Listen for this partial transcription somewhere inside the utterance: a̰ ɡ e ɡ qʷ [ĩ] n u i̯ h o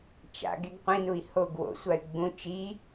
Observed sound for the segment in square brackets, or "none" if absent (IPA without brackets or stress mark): ĩ